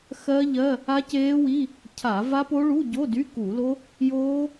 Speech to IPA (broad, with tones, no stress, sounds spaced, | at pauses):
x ɜ˦˥ ʎ ɜ˧˥˧ | a˦˥ c eː˦˥ w i˧˥˧ | cʰ a˧˩˧ v a˦˥ p o˦˥ ɭ u˧˥˧ ɟ o˧˥˧ d y˧˥˧ k u˧˩˧ l o˦˥ | j oː˦˥